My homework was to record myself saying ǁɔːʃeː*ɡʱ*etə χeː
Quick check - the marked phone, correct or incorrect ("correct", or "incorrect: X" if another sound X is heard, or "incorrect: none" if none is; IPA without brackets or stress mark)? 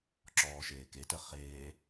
incorrect: k